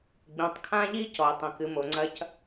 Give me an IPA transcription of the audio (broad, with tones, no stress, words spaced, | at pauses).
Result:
ɡ͡bĩ˨tˤkʰã˦ʎi˦ cɔ˨ɪ̯tˤĩ˨kɨ˨mo˨ ŋ͡ǀɐ˦c